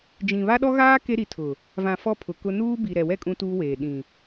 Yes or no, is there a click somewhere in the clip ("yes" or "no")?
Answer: no